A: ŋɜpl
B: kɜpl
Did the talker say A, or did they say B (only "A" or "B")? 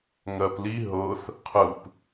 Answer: A